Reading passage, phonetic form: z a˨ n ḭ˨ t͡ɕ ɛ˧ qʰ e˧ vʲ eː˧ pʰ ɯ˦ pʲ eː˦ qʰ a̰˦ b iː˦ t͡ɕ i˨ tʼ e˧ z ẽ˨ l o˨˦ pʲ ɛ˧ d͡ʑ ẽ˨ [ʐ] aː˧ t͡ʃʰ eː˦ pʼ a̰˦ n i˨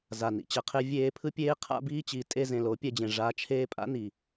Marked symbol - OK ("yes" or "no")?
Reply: yes